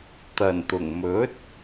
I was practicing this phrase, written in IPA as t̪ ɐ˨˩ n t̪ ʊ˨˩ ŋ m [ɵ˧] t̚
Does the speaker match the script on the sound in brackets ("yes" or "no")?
no